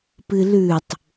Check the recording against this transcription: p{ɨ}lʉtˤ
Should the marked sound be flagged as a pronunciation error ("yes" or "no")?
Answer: no